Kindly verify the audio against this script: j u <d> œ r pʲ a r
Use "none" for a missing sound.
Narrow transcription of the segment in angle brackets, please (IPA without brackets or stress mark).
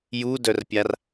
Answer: d